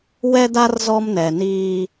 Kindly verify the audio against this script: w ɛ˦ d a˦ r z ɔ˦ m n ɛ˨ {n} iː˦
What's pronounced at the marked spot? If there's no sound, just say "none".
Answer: n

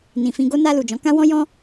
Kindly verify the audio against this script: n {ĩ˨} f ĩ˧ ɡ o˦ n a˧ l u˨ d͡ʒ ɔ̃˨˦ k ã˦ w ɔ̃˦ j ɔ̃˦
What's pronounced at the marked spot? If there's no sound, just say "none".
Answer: ĩ˨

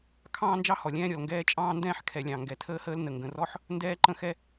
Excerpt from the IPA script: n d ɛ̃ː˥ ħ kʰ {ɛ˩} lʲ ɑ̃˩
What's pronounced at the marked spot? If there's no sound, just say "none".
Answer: ɛ˩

